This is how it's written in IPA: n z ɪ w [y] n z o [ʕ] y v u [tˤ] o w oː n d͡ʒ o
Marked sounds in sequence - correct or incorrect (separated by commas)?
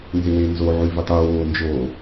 incorrect, correct, correct